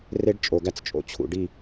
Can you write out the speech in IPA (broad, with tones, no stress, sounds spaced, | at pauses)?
r e˦ ɖ t͡ʃʼ o˨ ɡ æ˦ t͡s t͡ʃʼ o̰˦ t͡ɕʰ ṵ˨ ɖ i˦˨